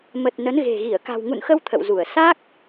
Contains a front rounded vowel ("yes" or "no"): no